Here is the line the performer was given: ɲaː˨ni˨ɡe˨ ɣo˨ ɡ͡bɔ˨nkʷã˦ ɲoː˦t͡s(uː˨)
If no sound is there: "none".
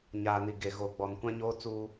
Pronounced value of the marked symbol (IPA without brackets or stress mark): uː˦